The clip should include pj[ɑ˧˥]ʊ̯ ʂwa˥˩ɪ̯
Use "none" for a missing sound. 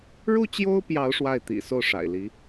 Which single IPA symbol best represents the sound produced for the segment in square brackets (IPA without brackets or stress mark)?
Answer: ɑ˧˥